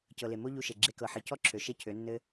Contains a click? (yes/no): yes